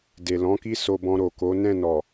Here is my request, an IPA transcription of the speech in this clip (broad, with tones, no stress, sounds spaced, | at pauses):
d e˨ l ɔ̃˨˦ k i˦ s o˧ b ɔ̃˧ ɾ o˨ k o˨˦ n ɛ̃˦˨ n ɔ˨